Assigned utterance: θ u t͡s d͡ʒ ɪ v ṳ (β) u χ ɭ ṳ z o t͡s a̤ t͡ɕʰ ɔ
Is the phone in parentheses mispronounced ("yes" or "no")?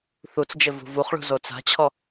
yes